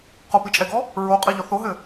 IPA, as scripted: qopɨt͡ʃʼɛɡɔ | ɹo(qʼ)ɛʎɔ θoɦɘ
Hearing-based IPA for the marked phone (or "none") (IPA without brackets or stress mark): qʼ